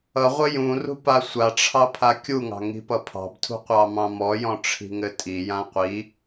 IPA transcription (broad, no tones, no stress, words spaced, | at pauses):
ʌʁʷɘ jũrṳ pasʷaʈ͡ʂʰɑ pʰakʲuŋɑ̤ ŋi̤pʌpʰɑ̤btʰṳ qʷɑmɑ̃mɔjɔ̃ ʈ͡ʂʰi̤ŋɘtʼijã qʷi